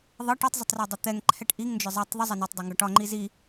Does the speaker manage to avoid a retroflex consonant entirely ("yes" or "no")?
no